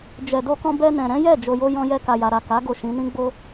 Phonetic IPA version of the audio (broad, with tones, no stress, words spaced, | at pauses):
d͡ʒɛ˨do˧kɔ̃˧ bɛ˧nɛ̃˨ɾɛ̃˨˦jɛ˦˨ d͡ʒo˨jo˧ jɔ̃˧jɛ˧ka˨ja˨ ɾa˨ ka˨˦ ɡo˦˨ʃĩ˨˦nĩ˦ɡ͡bo˦